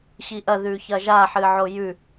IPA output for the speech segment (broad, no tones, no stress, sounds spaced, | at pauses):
ɕ i ʔ ɐ ð ʉ ç ɐ ʒ a ħ ɨ ʕ o j ʉ